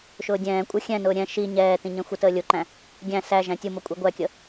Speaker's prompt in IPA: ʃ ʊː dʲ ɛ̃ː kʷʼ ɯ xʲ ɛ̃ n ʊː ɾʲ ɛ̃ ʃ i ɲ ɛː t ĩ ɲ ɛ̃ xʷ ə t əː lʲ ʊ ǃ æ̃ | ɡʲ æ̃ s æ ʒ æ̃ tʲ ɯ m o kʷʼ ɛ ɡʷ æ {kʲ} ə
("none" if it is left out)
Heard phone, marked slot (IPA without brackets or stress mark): kʲ